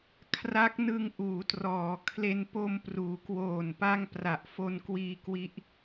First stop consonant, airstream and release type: aspirated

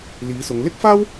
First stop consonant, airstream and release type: plain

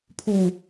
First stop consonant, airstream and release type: aspirated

